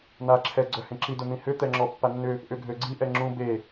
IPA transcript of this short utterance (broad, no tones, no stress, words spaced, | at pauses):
n̪aǁʰɛ ɡ͡ǀœhẽǁi dʊn̪ĩhʏ t̪ɛŋ͡ǁɔpːanːʏ | ʔʏɡʱøɡ͡ǀi ʔɛŋ͡ǁũ be